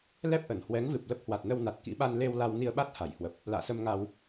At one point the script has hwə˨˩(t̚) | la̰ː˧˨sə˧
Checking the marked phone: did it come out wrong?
yes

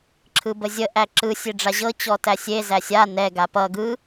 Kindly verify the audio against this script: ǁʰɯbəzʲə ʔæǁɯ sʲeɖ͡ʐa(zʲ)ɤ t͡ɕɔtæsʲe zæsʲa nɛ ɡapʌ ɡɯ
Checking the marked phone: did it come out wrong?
yes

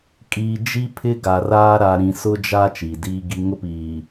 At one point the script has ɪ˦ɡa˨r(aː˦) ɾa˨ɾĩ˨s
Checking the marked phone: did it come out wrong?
no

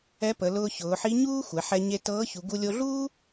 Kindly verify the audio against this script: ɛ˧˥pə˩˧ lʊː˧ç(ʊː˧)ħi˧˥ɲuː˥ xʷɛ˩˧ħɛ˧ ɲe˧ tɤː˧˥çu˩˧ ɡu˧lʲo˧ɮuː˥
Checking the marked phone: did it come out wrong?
yes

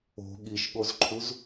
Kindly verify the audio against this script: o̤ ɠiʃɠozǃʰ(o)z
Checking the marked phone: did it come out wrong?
yes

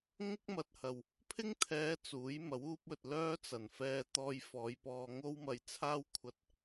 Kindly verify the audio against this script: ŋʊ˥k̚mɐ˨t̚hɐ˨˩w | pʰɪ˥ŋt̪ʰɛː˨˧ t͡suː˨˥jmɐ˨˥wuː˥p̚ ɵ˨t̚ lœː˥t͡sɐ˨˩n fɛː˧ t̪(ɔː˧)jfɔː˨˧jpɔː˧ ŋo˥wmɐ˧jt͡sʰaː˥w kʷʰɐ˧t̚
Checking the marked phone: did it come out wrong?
no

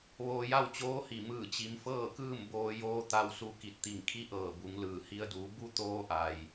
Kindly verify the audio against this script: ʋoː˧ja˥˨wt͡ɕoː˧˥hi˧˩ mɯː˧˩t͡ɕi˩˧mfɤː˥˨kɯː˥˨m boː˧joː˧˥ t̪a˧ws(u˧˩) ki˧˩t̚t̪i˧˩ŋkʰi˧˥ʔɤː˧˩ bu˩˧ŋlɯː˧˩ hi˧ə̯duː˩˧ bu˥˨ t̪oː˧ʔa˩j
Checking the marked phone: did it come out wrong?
yes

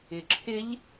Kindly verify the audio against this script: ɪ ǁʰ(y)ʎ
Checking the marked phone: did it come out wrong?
yes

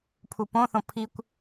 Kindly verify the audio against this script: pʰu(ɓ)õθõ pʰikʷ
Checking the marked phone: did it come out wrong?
yes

